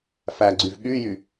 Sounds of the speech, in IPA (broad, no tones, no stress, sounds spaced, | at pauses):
f æ ɡ͡ǀ y v ɠ y j y